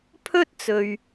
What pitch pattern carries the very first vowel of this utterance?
high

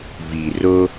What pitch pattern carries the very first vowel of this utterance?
low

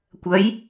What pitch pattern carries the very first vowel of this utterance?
rising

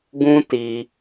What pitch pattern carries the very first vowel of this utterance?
high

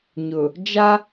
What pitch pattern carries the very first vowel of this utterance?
low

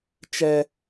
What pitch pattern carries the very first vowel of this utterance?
high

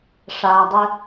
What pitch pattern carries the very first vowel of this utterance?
low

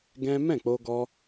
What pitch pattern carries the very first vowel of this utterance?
high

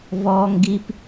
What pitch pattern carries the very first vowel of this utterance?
high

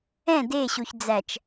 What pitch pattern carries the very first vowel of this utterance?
falling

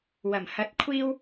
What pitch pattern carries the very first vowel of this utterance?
low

